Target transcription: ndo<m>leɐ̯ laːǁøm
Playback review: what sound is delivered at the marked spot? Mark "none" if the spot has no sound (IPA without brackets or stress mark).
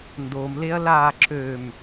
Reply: m